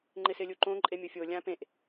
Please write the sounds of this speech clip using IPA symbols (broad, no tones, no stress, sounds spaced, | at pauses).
ŋ͡ǃ ɪ s ɪ lʲ u ǃ õ ǃʼ e mʲ ʊ fʲ o lʲ ã p ẽ ʔ